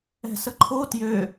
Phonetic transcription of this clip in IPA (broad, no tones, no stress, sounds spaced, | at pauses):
ɛ̤ s ə ǃʰ o t j ø